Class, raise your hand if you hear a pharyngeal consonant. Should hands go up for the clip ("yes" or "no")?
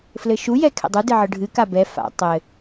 yes